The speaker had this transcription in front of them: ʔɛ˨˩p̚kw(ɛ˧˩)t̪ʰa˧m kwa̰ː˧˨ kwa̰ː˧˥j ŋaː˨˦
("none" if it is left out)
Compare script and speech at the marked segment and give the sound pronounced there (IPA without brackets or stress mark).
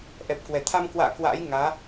ɛ˧˩